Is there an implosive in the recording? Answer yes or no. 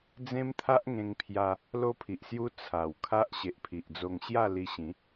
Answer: no